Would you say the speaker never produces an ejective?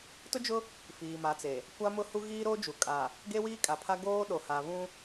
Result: no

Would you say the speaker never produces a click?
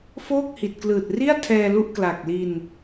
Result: yes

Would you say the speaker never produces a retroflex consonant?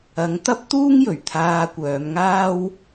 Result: yes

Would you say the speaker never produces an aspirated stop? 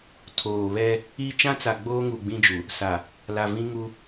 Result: no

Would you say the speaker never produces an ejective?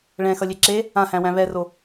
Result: yes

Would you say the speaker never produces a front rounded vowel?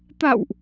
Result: yes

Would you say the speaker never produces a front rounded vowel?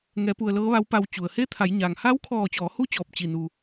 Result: yes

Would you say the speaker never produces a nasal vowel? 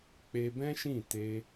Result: no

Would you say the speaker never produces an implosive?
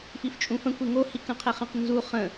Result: yes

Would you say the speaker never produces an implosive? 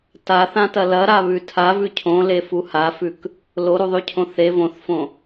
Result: yes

